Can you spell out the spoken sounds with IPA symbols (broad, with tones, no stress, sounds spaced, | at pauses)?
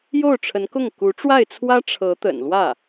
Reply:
j o˥˩ ʊ̯ ʈ͡ʂʰ ə˧˥ n k ʊ˥˩ ŋ k u˧˥ ʈ͡ʂ w a˥˩ ɪ̯ t͡sʰ w ä˥ ʈ͡ʂʰ ɤ˧˥ t̪ ə̰˨˩ n l w ä˥˩